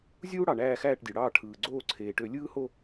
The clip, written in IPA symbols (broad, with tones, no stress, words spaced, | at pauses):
zʲuː˦ɽɑ˩ ɳæː˦˨xæː˦˨ʈdʲø˩ɽɑː˦˨ ʈʰɯː˩ɡ͡ǀoː˦˨ǀʰeː˩ʈø˧˩˧ lʲɯː˦ho˦˨